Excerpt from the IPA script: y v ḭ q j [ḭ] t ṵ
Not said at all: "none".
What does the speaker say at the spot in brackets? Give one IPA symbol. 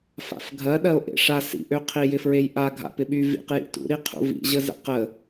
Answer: ḭ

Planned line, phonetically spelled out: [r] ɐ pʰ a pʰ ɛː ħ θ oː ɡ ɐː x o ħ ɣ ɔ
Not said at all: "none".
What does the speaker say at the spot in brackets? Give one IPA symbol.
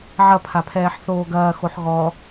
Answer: ʕ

